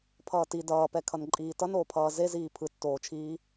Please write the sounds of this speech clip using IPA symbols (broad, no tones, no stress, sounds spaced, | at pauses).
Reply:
pʰ ʌː t i d ʌː p ɛ kʰ ʌ n ǃʼ iː t ʌ n oː pʰ ʌː z e z iː pʰ ɯ tː oː t͡ʃʰ iː